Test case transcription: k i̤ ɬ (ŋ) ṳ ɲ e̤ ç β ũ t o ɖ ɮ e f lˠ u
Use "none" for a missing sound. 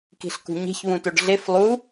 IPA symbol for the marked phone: k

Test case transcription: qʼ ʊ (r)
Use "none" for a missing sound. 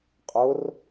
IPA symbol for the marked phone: r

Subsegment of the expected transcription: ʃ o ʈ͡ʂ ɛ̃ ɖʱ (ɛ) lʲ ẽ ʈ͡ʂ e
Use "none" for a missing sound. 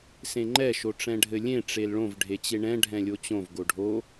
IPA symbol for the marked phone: ɘ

